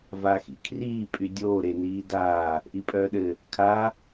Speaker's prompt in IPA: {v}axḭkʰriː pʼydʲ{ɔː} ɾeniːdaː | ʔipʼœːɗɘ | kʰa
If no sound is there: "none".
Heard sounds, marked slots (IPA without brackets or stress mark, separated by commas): v, oː